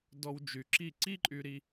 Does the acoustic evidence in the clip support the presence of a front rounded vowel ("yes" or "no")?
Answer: yes